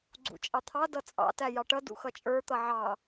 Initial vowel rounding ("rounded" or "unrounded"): rounded